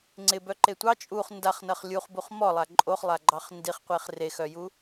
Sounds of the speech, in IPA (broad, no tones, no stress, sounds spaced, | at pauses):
ŋ͡ǀ ɪ b œ ǃ e tʷ ɑ t͡ʃʼ u χ n d a χ n ɐ χ lʲ u χ b u χ m ɔ lˠ a ǃʼ o χ lˠ a ɡ͡ǃ ɑ χ n d i χ qʷ e χ r e x œ j u